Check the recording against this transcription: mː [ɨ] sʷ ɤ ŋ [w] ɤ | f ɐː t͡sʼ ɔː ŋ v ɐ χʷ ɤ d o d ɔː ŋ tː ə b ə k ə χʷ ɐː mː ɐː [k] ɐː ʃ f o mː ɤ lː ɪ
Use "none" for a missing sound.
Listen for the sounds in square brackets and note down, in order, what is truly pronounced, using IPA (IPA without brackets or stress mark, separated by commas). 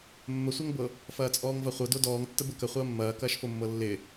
ə, b, k